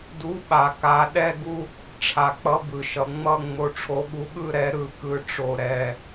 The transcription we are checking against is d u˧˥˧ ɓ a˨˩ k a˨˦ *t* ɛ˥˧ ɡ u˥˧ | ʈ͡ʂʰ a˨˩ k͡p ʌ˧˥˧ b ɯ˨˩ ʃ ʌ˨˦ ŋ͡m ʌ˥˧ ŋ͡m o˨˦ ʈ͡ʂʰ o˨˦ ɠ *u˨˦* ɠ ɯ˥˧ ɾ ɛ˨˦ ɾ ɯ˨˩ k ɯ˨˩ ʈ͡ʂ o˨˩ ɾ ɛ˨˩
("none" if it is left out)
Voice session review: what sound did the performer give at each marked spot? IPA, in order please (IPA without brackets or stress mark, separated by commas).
ɗ, u˨˦